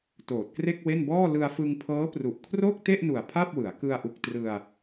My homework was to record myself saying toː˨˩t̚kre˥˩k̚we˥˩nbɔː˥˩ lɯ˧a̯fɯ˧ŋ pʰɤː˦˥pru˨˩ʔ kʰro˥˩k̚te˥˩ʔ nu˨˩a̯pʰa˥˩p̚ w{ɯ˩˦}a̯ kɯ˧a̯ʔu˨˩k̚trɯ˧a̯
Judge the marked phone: correct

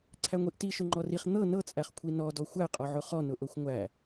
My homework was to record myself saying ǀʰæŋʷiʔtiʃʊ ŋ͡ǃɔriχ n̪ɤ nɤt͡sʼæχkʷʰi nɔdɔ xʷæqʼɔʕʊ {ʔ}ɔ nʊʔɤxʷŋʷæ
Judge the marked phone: incorrect: χ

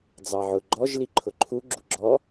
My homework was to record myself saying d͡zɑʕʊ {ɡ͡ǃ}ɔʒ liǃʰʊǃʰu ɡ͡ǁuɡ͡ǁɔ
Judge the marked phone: correct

